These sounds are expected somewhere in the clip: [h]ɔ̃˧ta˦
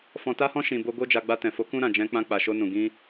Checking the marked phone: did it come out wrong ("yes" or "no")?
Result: yes